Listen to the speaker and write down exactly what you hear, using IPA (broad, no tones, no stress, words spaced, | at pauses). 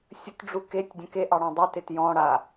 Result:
sʲətɖ͡ʐu ketʲdʲə̃ keʔɑɽɔ̃ dˤetet jɔ̃ ɽa